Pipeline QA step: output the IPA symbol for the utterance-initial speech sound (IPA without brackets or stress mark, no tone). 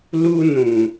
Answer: l